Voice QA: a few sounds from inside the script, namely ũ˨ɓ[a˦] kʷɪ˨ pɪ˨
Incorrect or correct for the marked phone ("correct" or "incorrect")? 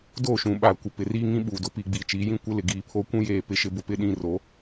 incorrect